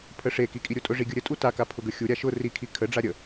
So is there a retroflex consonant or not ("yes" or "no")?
yes